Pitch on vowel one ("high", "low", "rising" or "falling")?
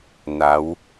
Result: rising